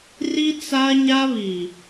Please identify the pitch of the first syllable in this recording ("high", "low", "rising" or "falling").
high